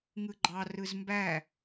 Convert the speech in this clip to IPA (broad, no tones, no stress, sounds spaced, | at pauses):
ŋ ɯ ɡ͡ǃ ɑ r ɯ z m b æ